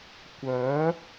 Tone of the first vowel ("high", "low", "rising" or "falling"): rising